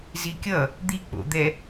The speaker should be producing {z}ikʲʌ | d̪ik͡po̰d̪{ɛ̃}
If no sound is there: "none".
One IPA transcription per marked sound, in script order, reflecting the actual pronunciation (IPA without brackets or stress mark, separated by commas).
z, ɛ